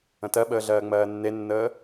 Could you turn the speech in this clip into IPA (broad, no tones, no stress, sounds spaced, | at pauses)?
ə̃ t ɜ ɓ əː ɮ ɜː ŋ͡m ɜː nː e nː əː